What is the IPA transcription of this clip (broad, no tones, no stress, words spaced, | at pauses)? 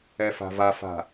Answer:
ɛfa̤vafa̤